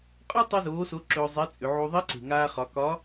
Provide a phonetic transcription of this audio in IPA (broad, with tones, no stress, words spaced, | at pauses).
qʼɒ˥ tˤe˥zoː˧˥so˧˥ ǁɵː˧zˤɛ˧˥ t͡sʼʏ˩˧ʕu˧ ðˤi˧˥ǀe̤˩ ŋaː˧χɒ˩˧kɒ˧˥